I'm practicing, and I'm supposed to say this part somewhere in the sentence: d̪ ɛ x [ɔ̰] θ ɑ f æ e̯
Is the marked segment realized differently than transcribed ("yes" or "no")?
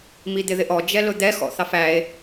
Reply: no